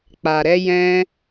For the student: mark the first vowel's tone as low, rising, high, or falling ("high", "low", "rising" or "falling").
low